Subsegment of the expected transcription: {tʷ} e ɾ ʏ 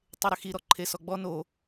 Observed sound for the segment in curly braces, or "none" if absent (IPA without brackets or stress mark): tˤ